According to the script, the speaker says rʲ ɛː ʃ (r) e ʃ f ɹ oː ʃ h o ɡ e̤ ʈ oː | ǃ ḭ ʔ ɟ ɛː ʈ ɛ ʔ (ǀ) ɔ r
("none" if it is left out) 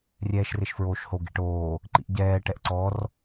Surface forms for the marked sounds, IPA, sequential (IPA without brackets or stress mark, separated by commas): r, ǀ